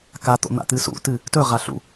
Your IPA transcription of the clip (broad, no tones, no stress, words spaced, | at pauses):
kat̪o̰n̪a̰t̪ɨ sṵtɨ | tɵʁa ɬṵ